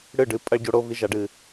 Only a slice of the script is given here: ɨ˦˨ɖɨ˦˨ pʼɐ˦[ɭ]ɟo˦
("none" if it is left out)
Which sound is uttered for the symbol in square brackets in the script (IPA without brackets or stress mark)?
ɭ